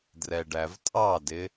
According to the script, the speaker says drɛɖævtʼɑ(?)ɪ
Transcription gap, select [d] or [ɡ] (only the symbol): d